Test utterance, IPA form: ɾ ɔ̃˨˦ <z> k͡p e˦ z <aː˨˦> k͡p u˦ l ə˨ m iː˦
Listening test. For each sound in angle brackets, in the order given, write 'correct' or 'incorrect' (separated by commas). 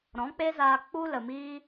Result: incorrect, incorrect